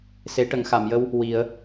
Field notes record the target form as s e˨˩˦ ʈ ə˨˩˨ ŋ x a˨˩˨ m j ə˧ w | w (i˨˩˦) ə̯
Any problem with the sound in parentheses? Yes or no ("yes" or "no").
no